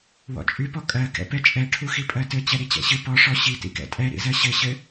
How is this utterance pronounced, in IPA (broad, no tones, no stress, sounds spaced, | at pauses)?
w ɔ̰ t͡ʃʼ y p ɔ kʼ ɜ k ɛ̰ p ɛ t͡ʃʼ ɛ ʈʰ u x i pʼ ɜ t ɘ t͡ɕ ɛ ɾ i t͡ɕ ɛ̰ ɕ ɨ p ɔ ʂ ɔ ɕ i t ḭ k ɛ̰ tʼ ɛ ɾ ḭ z ɜ ɕ ɘ ɕ ɘ